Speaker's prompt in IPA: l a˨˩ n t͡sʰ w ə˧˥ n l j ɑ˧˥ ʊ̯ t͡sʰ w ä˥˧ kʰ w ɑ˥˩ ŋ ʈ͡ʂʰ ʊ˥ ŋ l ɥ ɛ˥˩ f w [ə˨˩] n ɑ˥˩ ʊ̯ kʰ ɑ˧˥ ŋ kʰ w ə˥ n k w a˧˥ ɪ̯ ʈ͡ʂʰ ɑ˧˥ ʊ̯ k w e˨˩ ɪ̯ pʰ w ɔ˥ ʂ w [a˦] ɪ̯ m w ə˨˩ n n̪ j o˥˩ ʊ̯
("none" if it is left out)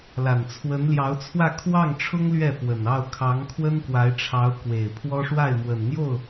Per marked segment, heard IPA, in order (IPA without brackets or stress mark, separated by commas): ə˨˩, a˥˩